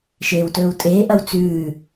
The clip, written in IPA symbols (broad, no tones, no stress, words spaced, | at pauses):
ʃeːwtɵːwtʼeːʔɐw t͡sʉː